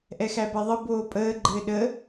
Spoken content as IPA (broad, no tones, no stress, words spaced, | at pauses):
ʔɛxæbɛðˤɘ boːpʼəː ɡ͡ǃɘːɗə